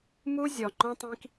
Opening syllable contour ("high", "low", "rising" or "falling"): high